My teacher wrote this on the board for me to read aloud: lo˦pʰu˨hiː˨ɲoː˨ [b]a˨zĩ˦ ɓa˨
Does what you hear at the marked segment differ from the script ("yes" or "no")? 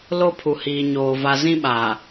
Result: yes